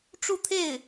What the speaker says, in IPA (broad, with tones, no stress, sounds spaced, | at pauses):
ʈ͡ʂ u˥˧ t̪ʰ e˥˩ ɪ̯